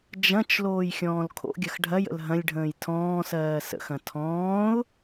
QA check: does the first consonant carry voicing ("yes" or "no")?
yes